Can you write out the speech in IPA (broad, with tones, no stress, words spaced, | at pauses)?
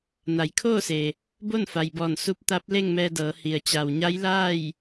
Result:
na˩˧jkʰoː˥˨se˩ | bo˥˨nfa˩jbɔː˧˩n su˧p̚ t̪a˧˥p̚le˥˨ŋmɛː˧dɤː˩˧ hi˩ə̯t͡ɕa˩wɲa˧˥j laː˥˨j